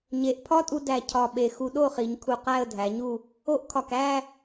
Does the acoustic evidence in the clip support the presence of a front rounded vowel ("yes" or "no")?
no